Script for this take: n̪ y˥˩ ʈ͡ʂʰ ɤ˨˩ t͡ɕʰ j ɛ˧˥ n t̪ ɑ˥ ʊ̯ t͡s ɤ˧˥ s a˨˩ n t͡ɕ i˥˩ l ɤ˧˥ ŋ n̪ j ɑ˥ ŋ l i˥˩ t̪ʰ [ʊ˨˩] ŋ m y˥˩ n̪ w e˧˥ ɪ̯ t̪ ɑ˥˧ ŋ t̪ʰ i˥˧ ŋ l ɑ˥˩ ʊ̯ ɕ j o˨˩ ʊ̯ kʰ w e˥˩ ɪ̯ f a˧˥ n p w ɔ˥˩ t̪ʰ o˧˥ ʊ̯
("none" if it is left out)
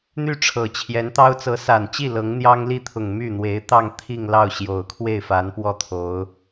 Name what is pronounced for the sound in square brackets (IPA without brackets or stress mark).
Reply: ʊ˨˩